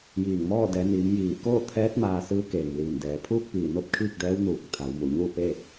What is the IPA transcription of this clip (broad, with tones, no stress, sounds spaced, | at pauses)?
j iː˧˩ ŋ m ɔː˥˨ d ɛː˩˧ n iː˩˧ m j iː˧˩ k oː˥˨ t̪ʰ ɛː˧˥ t̚ m aː˧ s ɯː˧˥ k eː˩ ŋ l iː˧˩ n d ɛː˩˧ pʰ uː˥˨ k̚ p iː˧˩ n o˥˨ p̚ kʰ iː˥˨ k̚ d ɛː˧˥ w n uː˧˩ k̚ t̪ʰ a˩˧ w m u˩ ɲ uː˥˨ p eː˥˨ t̚